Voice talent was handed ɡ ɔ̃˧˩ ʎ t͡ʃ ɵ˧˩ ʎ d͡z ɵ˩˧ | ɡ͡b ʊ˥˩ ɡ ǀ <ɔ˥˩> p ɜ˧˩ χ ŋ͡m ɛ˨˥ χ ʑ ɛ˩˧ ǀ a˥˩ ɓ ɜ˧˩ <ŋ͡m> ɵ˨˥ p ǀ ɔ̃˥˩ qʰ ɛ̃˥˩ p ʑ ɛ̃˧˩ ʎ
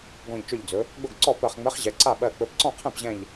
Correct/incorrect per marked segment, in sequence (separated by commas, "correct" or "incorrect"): correct, incorrect